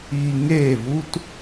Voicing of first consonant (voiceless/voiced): voiced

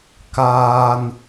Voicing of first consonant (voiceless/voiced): voiceless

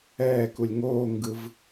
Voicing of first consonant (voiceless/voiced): voiceless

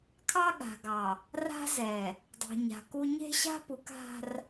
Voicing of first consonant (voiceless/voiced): voiceless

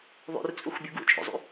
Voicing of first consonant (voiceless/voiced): voiced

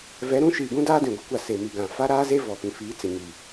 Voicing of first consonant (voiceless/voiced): voiced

